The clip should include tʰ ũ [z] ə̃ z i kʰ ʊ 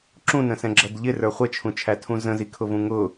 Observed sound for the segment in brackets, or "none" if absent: z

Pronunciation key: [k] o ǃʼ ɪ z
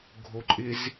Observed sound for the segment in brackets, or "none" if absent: ɡʱ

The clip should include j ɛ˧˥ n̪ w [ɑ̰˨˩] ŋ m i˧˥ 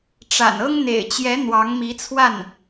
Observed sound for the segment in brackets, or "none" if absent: ɑ˧˥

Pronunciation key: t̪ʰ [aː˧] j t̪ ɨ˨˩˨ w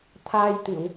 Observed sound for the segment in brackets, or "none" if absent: aː˧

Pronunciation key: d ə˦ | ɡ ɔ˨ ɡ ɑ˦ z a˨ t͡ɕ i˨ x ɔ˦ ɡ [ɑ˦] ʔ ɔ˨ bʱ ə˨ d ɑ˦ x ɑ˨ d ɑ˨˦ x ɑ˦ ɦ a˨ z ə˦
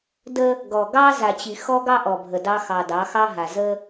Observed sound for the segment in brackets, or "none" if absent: ɑ˦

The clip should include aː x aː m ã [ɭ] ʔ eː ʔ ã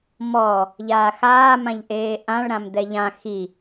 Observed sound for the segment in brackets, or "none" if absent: ʎ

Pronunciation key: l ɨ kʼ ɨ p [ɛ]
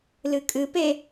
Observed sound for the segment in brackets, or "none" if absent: e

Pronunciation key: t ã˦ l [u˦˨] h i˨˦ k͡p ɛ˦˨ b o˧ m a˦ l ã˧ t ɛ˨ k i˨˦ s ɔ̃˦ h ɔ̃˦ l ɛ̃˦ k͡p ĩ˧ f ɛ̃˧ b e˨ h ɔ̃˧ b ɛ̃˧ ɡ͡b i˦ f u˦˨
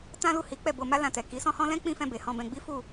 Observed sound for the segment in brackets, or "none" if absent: u˦˨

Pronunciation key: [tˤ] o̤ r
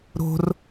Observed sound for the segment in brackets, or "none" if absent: ɾ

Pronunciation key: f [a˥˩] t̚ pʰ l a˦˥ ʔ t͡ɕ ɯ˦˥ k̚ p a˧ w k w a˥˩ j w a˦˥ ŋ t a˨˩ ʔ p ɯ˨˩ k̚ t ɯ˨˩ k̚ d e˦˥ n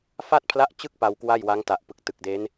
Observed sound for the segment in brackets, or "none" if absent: a˥˩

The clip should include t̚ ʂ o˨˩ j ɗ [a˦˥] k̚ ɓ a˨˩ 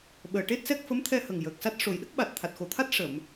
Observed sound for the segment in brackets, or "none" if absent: ə˦˥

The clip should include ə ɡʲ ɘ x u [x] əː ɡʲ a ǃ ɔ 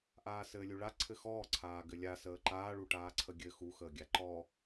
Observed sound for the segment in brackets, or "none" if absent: x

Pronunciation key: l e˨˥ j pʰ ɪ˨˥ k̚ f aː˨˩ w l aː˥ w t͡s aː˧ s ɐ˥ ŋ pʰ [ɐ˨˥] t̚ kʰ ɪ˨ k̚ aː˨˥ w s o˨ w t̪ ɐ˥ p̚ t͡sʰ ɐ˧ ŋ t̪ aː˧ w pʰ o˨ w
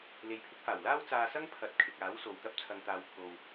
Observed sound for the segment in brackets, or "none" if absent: ɐ˨˥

